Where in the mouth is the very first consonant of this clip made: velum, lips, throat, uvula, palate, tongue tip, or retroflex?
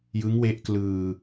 palate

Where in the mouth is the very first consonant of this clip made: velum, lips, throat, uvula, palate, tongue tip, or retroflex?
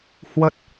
throat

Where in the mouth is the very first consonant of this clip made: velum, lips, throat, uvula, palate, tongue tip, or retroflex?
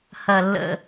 throat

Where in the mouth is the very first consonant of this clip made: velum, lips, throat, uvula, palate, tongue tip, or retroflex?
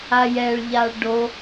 palate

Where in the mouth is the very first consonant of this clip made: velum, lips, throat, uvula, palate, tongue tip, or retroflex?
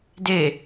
tongue tip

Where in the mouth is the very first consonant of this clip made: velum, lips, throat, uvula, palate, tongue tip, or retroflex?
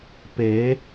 lips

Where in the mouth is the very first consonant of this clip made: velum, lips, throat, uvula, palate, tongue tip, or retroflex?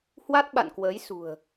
throat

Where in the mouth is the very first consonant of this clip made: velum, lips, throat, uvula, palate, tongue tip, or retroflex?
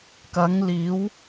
velum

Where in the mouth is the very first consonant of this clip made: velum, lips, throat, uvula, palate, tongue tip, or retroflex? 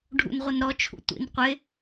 retroflex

